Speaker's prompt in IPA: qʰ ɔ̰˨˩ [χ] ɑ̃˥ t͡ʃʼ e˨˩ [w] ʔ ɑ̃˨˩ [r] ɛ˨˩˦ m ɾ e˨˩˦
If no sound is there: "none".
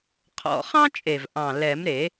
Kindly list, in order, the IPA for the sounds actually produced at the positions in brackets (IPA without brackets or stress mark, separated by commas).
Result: χ, v, l